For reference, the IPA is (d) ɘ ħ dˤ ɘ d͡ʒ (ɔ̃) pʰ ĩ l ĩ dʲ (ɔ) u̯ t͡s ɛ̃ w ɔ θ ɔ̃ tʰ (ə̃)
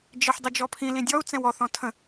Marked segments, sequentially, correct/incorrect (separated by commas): incorrect, incorrect, correct, correct